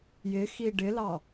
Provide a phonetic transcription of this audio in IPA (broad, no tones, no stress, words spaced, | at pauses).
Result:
jɪxi ɖɪlɑ